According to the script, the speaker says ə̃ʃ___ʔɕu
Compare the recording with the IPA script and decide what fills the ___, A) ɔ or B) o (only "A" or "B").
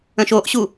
B